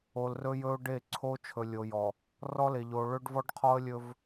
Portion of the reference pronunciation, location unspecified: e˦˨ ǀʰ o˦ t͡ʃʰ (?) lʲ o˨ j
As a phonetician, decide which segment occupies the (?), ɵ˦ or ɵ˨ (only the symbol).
ɵ˨